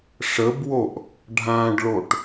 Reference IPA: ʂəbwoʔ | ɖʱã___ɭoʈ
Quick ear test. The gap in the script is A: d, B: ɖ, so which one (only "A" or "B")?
B